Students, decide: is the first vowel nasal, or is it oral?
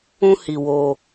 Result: nasal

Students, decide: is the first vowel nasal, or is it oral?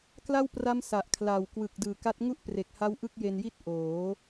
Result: oral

